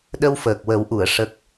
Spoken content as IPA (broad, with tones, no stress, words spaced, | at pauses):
ɗə˧wfəː˨˩k̚wə˨˩˦wʔu˨˩˨ə̯ ʂə˦˥k̚